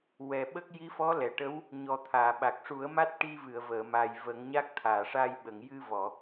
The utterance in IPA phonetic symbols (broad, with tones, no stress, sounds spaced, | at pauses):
w ɛ˨˩ ɓ ə˦˥ k̚ j i˧˥ f ɔ˧˥ l ɛ˨˩˨ ʈ ə˧˥ w | ɲ ɔ˨˩ t̪ʰ aː˨˩˨ ɓ a˨˩ k̚ ʂ u˨˩˦ ə̯ m a˦˥ t̚ ʈ i˧ v ɨ˨˩˨ ə̯ v əː˨˩˨ m a˨˩ j v ə˨˩˦ ŋ ɲ a˦˥ k̚ t̪ʰ aː˨˩˨ ʂ a˧ j ɓ ə˨˩˨ ŋ j ɨ˧ v ɔ˨˩˨